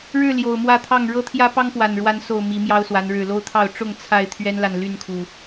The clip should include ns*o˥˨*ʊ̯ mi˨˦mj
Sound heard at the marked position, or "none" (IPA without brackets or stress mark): o˨˩